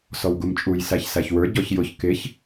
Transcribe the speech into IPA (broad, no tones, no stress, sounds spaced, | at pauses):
s ɔ w ɡ u m t͡ʃʼ u j s æ ç s æ ç w ə˞ ɟ ɔ ç j ʊ ç k ɪ ç